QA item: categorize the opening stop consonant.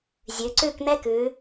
click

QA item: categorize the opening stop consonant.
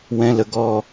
plain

